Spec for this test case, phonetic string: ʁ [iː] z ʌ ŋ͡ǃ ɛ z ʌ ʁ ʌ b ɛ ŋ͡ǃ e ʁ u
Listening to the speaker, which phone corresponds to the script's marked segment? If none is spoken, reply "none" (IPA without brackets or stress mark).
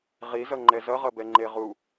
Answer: i